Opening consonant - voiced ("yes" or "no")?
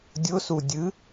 yes